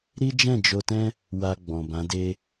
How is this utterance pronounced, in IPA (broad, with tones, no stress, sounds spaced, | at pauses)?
ɾ i˦ d͡ʒ ɛ̃˦˨ d͡ʒ o˧ t ɛ̃˦ | w a˧ ɡ͡b ɔ̃˨ b ã˨˦ d e˦